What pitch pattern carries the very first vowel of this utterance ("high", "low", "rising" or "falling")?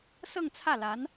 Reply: falling